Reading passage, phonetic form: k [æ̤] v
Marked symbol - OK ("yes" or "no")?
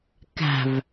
yes